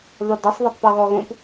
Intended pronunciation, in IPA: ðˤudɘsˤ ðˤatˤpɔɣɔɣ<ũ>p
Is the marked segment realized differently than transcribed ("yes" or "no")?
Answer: no